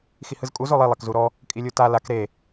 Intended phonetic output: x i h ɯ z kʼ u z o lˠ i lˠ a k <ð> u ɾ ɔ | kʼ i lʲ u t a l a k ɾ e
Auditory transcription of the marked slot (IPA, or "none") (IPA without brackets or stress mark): z